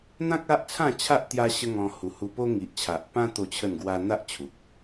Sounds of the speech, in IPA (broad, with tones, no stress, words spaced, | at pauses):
n̪ã˦k̚ a˦ʔt͡sʰã˥˧t͡ɕʰa˦ʔ t̪ja˦ɕə˦ŋɔ̃˧ hu˨˩hu˧po˦ ŋi˨ʔt͡ɕʰa˨ʔpã˦ t̪o˥˧t͡ɕʰə˥˧nɡwa˦ n̪a˦ʔ t͡ɕʰu˨k̚